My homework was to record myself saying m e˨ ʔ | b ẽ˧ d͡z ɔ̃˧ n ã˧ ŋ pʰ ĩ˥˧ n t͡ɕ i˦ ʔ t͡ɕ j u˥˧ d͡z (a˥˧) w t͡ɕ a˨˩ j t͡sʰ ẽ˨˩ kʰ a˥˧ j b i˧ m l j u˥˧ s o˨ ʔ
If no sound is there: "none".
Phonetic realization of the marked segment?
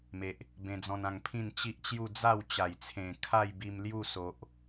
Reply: a˥˧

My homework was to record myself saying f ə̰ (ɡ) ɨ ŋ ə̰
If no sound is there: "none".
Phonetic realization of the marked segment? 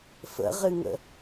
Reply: ʁ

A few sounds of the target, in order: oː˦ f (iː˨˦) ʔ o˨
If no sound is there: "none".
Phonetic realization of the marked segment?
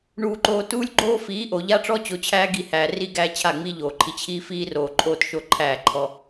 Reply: iː˨˦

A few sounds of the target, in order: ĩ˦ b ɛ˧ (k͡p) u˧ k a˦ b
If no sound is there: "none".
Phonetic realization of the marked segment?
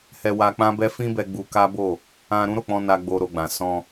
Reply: ɡ͡b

